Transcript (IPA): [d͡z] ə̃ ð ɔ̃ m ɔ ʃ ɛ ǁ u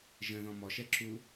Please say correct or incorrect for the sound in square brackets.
incorrect